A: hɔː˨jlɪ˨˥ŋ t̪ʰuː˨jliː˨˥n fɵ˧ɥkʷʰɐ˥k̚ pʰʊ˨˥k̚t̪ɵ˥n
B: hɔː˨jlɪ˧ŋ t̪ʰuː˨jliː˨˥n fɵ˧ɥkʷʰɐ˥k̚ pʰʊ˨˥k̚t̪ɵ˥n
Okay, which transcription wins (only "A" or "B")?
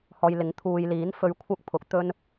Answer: A